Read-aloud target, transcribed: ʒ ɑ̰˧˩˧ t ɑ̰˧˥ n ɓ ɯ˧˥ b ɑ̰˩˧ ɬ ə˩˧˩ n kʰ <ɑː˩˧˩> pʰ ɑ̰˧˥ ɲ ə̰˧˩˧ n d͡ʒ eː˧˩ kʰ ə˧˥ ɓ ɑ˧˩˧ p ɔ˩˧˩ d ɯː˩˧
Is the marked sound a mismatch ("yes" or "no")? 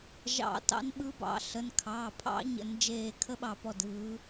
no